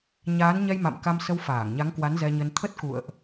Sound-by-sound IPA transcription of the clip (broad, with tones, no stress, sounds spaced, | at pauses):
ɲ aː˨˦ n ɲ ɛ˧ j m a̰˧˨ m k a˧ m s ə˧ w f aː˧˩ ŋ ɲ a˨˦ ŋ k w a˨˦ n z ɛ˧ ɲ ə˧ n t̪ʰ ə˦˥ t̚ k ṵ˧˨ ə̯ ʔ